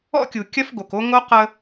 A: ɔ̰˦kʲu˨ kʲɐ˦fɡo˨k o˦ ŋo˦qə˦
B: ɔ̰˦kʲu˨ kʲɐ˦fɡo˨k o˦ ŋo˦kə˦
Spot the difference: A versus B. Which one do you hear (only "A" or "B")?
A